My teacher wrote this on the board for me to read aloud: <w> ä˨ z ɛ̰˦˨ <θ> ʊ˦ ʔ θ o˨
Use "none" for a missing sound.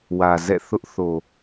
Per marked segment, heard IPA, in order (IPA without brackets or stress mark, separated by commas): w, θ